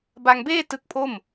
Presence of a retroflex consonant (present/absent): absent